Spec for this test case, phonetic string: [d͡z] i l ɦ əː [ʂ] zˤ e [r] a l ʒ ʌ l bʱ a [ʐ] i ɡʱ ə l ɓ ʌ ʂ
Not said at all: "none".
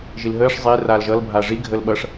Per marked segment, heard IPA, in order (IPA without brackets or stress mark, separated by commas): ʒ, ʂ, r, ʐ